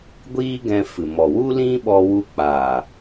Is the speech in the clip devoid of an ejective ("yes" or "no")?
yes